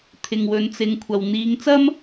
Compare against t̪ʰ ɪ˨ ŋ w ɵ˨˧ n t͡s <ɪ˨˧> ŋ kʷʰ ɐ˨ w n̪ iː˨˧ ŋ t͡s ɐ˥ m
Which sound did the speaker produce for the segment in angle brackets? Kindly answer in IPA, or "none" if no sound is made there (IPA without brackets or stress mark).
ɪ˨˧